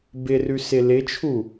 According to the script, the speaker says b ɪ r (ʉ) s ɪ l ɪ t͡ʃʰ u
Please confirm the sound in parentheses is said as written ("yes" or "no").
yes